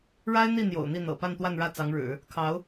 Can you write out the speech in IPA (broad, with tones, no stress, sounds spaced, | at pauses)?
ɻ a˥ ɪ̯ n̪ i˥˩ n̪ j o̰˨˩ ʊ̯ n̪ i˥˩ n̪ ɤ̰˨˩ p a˥˧ n t̪ w a˥˧ n ɻ ä˥˩ t͡s ɑ˧˥ ŋ ɻ ɻ̩˨˩˦ | kʰ ɑ˧˥ ʊ̯